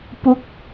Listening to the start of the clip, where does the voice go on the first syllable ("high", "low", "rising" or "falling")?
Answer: falling